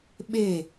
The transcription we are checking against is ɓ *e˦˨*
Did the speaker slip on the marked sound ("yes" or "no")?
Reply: no